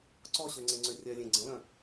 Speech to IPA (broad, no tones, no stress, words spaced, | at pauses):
ǀɔɕøŋ͡ǀẽŋ͡ǀø rʲœlʲẽ ɡ͡ǀə̃lœ̃